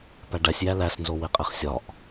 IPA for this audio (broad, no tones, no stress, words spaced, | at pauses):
pæɖæsʲjæ læsnzowe qʼeχsʲɒʔ